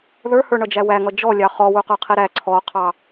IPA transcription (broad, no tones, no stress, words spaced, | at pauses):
ðə˞hə˞ɳʌd͡ʒæ wæŋʌ d͡ʒɔlʲɑ χɔwuqə˞qʰi ɾæ ǀʰɔqʰɑ